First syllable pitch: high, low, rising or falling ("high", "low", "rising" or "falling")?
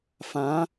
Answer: rising